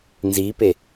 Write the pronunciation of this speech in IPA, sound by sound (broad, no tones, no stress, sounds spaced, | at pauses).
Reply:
n z i p e